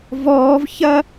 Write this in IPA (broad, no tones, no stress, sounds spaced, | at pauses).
v ɔː v ç ɐ